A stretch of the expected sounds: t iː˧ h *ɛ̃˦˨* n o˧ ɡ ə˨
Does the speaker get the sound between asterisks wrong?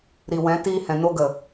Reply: yes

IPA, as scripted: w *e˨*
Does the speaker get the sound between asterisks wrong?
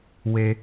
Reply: no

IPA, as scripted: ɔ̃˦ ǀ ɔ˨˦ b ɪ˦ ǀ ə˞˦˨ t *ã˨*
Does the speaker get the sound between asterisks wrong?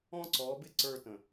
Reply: yes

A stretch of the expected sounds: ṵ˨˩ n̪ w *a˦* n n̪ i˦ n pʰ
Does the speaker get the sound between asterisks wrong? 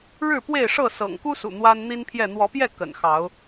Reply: no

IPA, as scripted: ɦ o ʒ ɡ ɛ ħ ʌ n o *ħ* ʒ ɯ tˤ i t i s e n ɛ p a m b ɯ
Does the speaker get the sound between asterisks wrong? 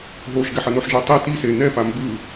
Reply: no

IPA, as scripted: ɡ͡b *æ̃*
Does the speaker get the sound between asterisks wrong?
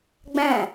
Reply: no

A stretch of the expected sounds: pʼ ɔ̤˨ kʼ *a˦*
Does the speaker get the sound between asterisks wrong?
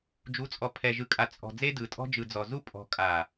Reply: yes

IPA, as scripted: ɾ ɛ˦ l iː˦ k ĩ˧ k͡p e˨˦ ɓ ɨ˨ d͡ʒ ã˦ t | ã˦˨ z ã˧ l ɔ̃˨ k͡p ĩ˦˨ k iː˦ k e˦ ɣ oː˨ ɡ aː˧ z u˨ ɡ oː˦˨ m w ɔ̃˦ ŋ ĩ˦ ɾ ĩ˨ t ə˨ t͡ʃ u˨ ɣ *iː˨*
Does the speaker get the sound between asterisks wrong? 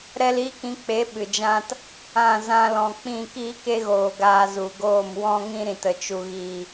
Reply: no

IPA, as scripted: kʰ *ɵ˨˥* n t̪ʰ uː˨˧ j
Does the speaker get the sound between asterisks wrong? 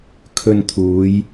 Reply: yes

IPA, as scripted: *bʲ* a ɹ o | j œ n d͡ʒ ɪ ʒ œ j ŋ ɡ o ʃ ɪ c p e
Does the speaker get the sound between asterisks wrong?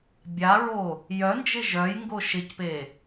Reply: no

